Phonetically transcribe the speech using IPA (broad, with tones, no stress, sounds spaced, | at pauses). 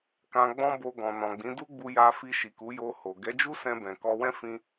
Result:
k ã˧ ɡ͡b ɔ̃˦ b o˧ ɡ ɔ̃˨ n ɔ̃˨ ɡ͡b ĩ˨˦ d u˦ ɡ͡b u˧ j a˧ f i˧ ʃ i˨ k u˨˦ j o˧ h o˨ ɡ ɛ˨˦ d͡ʒ u˦ s ɛ̃˧ b ɛ̃˨ k ɔ˧ w ɛ̃˦ f ĩ˦